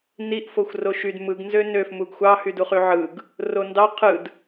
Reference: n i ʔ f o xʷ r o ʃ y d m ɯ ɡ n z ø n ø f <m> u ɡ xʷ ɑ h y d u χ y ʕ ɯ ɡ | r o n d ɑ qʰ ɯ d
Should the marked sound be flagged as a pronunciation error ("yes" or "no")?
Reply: no